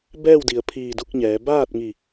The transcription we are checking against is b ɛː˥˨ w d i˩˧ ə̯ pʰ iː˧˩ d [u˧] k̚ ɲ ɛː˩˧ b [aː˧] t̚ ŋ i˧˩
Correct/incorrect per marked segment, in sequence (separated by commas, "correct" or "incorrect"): correct, incorrect